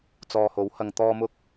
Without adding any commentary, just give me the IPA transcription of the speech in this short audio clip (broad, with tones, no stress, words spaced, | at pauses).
t͡sɔː˨ho˨˥whɐ˨ŋ t̪ɔː˧mʊ˧k̚